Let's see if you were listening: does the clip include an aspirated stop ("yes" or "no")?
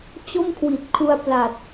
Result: yes